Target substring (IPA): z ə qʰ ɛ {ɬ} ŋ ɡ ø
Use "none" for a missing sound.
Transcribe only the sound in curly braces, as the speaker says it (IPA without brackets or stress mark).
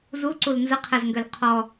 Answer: z